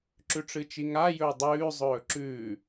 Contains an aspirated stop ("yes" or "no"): no